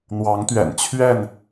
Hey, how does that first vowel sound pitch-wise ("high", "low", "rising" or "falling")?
rising